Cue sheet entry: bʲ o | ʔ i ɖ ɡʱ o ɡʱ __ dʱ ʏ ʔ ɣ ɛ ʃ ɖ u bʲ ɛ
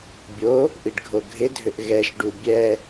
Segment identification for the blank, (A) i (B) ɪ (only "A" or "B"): B